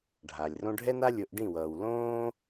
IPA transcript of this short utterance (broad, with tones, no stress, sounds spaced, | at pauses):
ɖʱ a˨ lʲ r õ˦ ɖʱ ɛ˦ n a˦ lʲ o˧ ʔ ɖ ĩ˦˨ w ʌː˨ w l õː˦